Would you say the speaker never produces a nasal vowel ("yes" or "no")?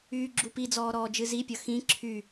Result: no